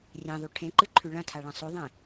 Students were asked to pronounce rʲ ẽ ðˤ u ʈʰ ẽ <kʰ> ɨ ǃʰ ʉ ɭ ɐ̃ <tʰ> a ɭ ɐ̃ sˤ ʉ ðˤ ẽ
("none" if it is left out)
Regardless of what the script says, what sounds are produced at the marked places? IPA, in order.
ǃ, tʰ

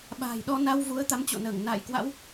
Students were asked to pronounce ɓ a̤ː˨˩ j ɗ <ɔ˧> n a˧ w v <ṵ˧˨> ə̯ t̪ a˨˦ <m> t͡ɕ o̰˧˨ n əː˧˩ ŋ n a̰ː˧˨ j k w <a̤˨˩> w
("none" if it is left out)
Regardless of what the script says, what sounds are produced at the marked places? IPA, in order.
ɔ˧, u˨˦, m, a̰˧˥

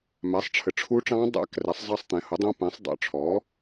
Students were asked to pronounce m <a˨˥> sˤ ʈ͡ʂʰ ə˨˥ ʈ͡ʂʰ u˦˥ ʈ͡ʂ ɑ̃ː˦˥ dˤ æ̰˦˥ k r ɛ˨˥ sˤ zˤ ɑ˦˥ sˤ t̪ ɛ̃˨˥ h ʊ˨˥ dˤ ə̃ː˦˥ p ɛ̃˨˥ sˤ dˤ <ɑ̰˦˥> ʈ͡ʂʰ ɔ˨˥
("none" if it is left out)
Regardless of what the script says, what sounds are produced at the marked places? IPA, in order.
æ˨˥, ɑ̰˨˥

